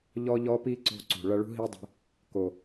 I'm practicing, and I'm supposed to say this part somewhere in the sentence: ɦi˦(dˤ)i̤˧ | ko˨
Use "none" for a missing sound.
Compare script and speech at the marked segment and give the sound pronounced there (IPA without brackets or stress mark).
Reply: dˤ